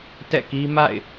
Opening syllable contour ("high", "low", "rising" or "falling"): falling